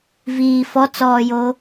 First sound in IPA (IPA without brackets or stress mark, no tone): v